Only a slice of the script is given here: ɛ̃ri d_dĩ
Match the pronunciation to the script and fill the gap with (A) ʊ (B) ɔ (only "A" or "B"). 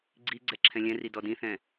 B